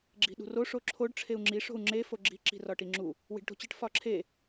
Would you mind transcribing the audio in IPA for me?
ɡ͡ǁ i̤ ɗ ṳ r o ʂ o ǁʰ o ɖ ʈ͡ʂʰ e u̯ ŋ͡ǁ i ʂ o̤ u̯ ŋ͡ǁ e f o ɡ͡ǁ i̤ ǁ i̤ r ɒ ʈ i ŋ͡ǁ u | w i̤ ɖ ʈ o̤ t͡ɕ i ʈ f ɒ ǁʰ e

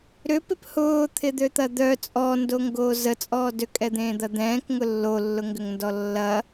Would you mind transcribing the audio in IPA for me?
ɾ ʏ p ɪ p h ʊː t̪ʰ ɪ d̪ ø t̪ ɐ d̪ œ t͡sʼ ɔ n d o ŋ ɡ oː z ə t͡sʼ ɔː d ø kʼ ɛ d̪ ẽː d̪ ɐ d̪ ɛ̃ː k ŋ ʊ lː o lː ʊ ŋ ɡ ʏ ŋ n d ɔ lː ɐ

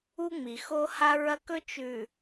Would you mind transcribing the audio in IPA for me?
u˦ ŋ͡m i˨ x o˦ h a˦ ɹ ɐ˦ k ɵ˦ t͡ʃ ʉ˨

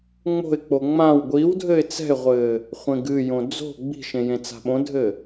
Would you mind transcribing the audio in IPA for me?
ŋ͡m o̤ ɪ̯ k͡p o ŋ͡m ã w ɡʷ iː w dʱ ɘː ɪ̯ t͡s ɛ̤ ɪ̯ ʁʷ ɘː | χʷ ẽ ɡ ɨ j õ d͡z o̤ ɡ͡b i̤ ʃ ẽ j ẽ t͡s a̤ ɓ õ dʱ ɘ

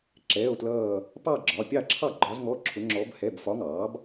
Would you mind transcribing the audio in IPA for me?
ǁ ɛː˧˥˧ o̯ t l ʌː˥˧ | p ɑ˥˧ ɡ͡ǁ ɒ˩˧˩ pʲ ɑ˥˩ ǁʰ ɑ˥˩ ɡ͡ǃ ɒ˧˥ z ŋ ɔ˧˥˧ ǁʰ ʊ˧˥ ŋ͡ǁ ɔ˧˥ b h ɛ˧˥˧ b f ɒ˧˥ ŋ ɑː˩˥ b

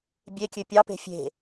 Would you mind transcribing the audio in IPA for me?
bʲ e kʲ ø pʲ ɑ p e̤ fʲ e̤

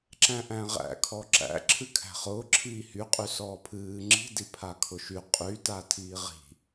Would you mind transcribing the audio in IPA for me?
ǁ æ̃ ʔ æ̃ ʁ æ̰ kʰ ɔ ǁ æ̰ ǁʰ ɨ kʰ æ̤ χ ʊː ǁʰ iː h y qʼ y s ɔː pʰ ɨː ŋ͡ǁ i̤ d i pʰ a kʰ ʊ ʃ y qʼ y t a tʰ iː ʁ i̤

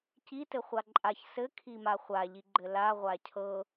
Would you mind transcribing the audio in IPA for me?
c i t ɘ χʷ a ǃʼ a ç s ɘ kʰ i m a χʷ a ʎ i ɡ͡ǃ ɘ l a ʁʷ a cʰ ɤ

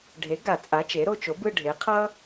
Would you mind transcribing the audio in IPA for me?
ɖʱ e˩˥ ɡ a˨˩˦ t͡sʼ a˩˥ t͡ʃ e˩˥ ɾ o˦˨ t͡ʃ o˩˥ b ɯ˦˨ ɖʱ e˩˥ qʰ ʌ˥

